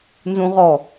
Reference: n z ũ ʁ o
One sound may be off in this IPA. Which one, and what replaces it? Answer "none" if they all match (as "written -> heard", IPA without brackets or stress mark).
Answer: o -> ɔ